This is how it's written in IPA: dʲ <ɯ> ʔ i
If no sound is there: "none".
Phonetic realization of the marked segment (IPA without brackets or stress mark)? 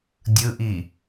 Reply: ɯ